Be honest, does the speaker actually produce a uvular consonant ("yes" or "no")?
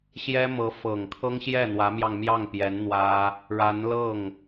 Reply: no